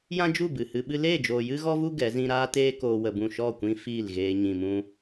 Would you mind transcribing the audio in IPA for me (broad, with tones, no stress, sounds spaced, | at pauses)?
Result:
j ã˦ d͡ʒ u˦˨ b ɨ˨ h ɨ˧ ɓ ɨ˦ l eː˦˨ d͡ʒ oː˨ j ɨ˦ ɣ ɔ˦ v u˦ ɡ ɛ˨˦ z ĩ˦ ɾ aː˦ t eː˦ k oː˧ w ə˧ b ũ˦˨ ʃ ɔ˦˨ kʷ ĩ˧ f iː˦˨ l ɣ eː˧ ɲ ĩ˨ m ũ˧